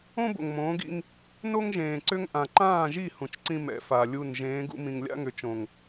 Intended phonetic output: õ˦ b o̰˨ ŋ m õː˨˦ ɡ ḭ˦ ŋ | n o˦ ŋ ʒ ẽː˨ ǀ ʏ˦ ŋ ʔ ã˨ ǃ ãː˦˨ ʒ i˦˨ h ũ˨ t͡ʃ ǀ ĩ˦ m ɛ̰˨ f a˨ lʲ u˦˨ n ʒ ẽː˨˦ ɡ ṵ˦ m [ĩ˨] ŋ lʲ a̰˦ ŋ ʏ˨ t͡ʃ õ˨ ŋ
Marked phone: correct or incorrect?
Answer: correct